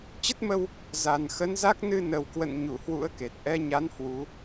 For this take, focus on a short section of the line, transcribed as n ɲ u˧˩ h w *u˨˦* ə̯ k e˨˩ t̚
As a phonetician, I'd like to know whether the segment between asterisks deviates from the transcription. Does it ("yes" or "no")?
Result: yes